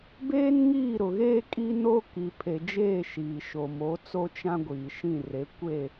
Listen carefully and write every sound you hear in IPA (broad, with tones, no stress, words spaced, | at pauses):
beː˦nŋiː˦˨ɾʊ˨ɣeː˦ kʼi˦no˦ ki˨pʰe˨d͡ʒeː˦˨ ʃiː˨ʃo˨mo˨˦t͡so˦ t͡ʃã˦ ɡʷiː˨ʃĩ˦˨re˨˦ kʷe˦˨